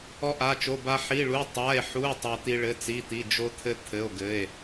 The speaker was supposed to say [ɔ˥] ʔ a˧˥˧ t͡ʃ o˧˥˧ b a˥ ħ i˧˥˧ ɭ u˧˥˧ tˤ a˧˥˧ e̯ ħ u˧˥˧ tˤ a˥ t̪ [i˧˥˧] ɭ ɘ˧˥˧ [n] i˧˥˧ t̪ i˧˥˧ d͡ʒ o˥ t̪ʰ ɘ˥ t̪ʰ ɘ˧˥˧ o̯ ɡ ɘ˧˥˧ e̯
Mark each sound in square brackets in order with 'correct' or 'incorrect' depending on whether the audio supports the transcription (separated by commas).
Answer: correct, incorrect, incorrect